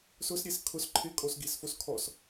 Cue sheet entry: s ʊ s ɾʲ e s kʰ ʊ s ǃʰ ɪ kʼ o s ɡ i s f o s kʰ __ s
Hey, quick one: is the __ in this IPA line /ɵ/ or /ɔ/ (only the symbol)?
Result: ɔ